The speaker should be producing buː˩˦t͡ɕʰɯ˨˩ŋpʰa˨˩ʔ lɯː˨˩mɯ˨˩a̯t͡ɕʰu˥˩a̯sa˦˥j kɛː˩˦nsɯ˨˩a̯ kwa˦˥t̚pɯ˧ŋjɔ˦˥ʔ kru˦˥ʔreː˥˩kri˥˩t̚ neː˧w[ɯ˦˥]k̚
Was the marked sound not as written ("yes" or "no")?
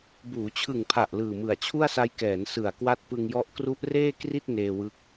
no